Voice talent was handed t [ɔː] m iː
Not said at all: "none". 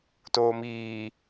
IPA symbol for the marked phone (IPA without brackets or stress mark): oː